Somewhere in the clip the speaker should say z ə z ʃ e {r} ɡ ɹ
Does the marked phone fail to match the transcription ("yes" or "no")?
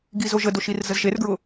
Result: no